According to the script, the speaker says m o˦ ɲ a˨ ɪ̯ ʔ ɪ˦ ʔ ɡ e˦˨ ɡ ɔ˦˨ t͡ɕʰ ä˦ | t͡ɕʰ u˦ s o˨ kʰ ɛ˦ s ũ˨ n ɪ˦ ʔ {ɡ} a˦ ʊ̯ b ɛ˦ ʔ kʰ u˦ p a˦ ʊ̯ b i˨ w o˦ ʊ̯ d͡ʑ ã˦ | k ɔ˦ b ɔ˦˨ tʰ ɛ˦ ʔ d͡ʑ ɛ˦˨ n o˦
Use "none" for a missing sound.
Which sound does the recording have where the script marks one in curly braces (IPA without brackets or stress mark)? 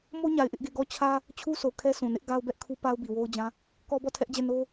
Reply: ɡ